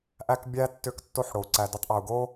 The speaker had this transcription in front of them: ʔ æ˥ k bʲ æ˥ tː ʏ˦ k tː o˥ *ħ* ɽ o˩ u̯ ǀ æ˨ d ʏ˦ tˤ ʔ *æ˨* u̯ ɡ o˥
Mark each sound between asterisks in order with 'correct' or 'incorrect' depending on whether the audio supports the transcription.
correct, correct

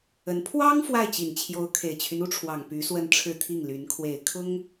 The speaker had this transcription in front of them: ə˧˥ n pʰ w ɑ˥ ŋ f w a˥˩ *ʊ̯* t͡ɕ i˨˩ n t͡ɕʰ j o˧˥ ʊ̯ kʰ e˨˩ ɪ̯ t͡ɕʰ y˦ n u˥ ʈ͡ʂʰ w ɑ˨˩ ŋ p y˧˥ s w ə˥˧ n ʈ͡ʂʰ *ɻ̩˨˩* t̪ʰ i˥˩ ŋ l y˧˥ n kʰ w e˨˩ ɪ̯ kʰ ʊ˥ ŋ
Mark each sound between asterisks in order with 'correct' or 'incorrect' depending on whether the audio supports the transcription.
incorrect, incorrect

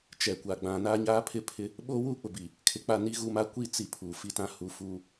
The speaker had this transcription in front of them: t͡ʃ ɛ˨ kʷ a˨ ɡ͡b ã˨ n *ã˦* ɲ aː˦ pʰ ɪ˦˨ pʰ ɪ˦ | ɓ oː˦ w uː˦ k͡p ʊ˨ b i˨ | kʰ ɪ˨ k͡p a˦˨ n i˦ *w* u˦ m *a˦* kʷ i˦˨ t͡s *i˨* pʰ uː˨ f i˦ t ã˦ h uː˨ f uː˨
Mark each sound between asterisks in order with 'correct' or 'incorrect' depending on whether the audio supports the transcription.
incorrect, incorrect, correct, incorrect

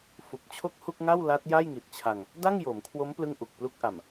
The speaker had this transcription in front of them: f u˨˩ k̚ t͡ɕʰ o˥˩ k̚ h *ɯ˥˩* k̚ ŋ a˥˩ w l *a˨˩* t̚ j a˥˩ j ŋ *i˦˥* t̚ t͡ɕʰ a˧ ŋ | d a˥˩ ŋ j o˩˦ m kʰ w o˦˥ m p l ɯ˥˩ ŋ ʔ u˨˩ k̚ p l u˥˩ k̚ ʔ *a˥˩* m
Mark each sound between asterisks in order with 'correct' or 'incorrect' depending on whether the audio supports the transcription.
incorrect, incorrect, incorrect, incorrect

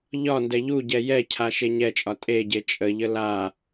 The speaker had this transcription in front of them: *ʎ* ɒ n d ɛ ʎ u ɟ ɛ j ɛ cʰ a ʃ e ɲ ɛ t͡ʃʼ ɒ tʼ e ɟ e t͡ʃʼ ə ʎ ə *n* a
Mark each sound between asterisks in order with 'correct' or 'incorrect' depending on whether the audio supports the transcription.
correct, incorrect

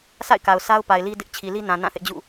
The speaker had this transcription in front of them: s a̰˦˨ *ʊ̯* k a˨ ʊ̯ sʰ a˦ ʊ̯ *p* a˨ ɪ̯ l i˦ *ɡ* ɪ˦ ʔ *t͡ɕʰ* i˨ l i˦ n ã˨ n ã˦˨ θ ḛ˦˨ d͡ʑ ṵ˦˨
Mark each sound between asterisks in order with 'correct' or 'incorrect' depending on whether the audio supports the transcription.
incorrect, correct, incorrect, correct

